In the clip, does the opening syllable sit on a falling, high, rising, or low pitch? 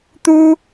high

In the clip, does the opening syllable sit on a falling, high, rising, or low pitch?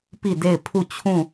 falling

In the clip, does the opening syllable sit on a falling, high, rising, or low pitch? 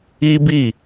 high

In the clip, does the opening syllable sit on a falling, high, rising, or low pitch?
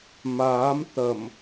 rising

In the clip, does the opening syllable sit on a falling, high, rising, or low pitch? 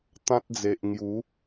high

